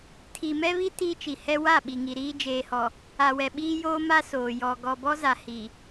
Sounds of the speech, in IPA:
tʰi˨mɛ˦βi˦ ti˦ t͡ʃi˨hɛ˦ wa˦˨ɓi˨ ŋi˨ɾiː˦ d͡ʒeː˨hɔ˨ | a˨wɛ˨ ɓiː˦joː˦ma˦ soː˨jɔ˨ ɡɔ˨bɔ˦za˨ hi˨

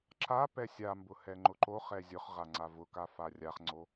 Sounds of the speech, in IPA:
ǁa pɛsʲambʊ hɛŋ͡ǃʊǃoχɛ zʲʊχʁa ŋ͡ǀavʊka farʲaχŋ͡ǀo

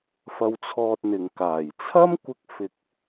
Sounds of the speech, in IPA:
fɐ˧wt͡sʰɔː˧t̚n̪ɪ˨ŋkaː˨˩j t͡sʰɐ˥mkʷɪ˧k̚ fɪ˨k̚

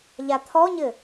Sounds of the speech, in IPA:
ʎat̪ʰɔɲɘ

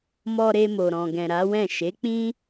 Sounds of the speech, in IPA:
mɔ˧ɾe˧ mo˨ɾɔ̃˨ɡɛ̃˨ ɾa˨˦wɛ̃˦˨ ʃe˨˦k͡pĩ˦

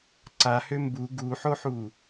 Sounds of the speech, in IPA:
ǀahø mbu ɡuħoħu

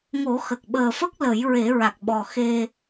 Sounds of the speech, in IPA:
ŋo˨˩˦xə˨˩k̚ ɓəː˨˩fə˦˥k̚ lə˨˩˦jɹe˨˩˦ɹa˨˩k̚ɓɔ˨˩ xe˧

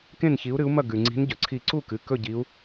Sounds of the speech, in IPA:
kẽ˥˨nçi˨˦u̯ɾɨ˨˦u̯mɐ˥˨ ɡʉ˩ŋ͡ǀi̤˨˦n ɟɵ˩ǀʰi˧˩ǀu˥˨kɨ˩˧˩ kɵ˥˨ɟi˨˦u̯

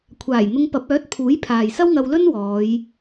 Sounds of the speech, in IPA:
kʷʰaː˨˩jn̪ʊ˧ŋ pɐ˨˥p̚œː˨˥t̚pʰuː˨˥j pʰaː˨jsɐ˥wŋɐ˧wlɵ˥n wɔː˨˧j

